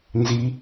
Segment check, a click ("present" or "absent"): absent